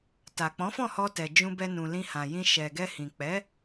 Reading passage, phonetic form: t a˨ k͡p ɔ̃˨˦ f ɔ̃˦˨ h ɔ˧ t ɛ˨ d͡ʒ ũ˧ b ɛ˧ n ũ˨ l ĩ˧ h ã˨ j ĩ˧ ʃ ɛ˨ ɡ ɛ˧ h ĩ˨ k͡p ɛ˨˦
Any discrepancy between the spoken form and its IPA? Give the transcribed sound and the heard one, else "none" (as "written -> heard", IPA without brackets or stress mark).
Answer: none